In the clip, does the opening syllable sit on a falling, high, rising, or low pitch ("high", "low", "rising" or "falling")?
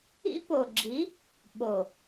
high